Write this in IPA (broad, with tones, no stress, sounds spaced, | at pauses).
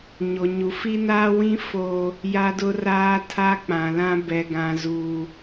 ɲ o˨ ɲ u˨ f i˦ n aː˦ w ĩ˦ f oː˦ | j a˦ d ʊ˦ r aː˦ tʰ a˦ k͡p ã˨ l ã˦ b ɛ˨ ɡ ã˨ z uː˨